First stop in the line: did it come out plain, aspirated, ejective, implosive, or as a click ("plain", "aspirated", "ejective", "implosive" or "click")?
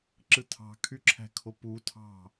click